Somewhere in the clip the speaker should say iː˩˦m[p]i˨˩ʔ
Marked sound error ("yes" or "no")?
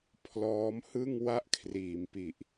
no